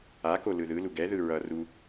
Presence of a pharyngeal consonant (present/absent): absent